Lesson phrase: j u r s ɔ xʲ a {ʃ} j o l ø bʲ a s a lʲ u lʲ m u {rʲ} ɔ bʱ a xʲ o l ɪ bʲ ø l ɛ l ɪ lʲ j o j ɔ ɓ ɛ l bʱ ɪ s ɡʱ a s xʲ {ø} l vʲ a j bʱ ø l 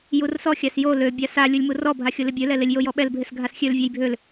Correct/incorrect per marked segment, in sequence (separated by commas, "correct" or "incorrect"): incorrect, incorrect, correct